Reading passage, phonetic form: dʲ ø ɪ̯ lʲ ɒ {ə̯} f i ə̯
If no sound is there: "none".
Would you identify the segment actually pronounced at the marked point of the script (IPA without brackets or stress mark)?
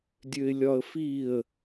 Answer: ə̯